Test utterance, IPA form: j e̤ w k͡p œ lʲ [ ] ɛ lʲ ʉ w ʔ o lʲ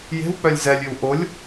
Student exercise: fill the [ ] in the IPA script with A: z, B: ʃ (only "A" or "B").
A